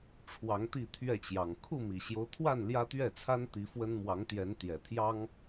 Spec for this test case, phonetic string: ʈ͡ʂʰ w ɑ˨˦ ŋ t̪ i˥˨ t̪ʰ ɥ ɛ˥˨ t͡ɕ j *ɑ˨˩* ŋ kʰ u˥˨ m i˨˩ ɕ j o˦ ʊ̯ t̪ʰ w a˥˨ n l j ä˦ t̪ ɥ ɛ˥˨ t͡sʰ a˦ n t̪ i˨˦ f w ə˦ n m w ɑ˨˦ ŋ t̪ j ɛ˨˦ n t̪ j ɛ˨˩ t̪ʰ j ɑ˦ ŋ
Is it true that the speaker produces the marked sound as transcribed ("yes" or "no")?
yes